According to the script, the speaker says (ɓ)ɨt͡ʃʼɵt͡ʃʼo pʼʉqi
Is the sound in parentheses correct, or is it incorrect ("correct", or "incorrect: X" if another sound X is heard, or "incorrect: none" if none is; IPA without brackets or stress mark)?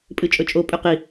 incorrect: pʼ